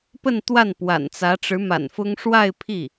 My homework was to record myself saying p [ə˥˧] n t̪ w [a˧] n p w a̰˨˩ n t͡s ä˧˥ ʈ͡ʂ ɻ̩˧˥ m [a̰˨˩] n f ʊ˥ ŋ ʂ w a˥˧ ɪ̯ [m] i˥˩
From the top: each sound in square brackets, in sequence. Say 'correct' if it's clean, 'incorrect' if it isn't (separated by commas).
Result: correct, incorrect, correct, incorrect